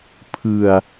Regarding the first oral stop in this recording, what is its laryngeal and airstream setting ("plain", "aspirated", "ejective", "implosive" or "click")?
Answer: aspirated